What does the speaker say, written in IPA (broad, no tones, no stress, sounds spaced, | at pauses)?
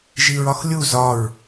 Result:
ʒ i ɹ ɒ x lʲ u z ɒ ɹ